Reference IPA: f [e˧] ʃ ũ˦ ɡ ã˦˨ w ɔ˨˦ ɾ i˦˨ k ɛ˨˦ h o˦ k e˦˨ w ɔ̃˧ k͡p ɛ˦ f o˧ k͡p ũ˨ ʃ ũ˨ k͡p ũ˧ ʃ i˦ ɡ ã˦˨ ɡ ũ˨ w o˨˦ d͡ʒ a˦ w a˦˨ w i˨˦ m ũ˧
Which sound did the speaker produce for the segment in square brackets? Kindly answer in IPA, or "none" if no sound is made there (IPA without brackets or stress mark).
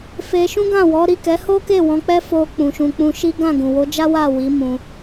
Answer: e˧